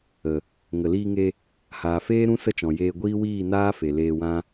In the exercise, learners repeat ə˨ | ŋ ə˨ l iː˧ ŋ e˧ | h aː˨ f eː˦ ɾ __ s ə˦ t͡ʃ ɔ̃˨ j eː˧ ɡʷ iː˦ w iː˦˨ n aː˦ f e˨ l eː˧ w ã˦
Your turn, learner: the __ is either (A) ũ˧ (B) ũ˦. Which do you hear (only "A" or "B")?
B